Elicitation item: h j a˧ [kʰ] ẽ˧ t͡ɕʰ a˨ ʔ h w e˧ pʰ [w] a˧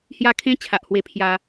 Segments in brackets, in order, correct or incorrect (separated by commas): correct, incorrect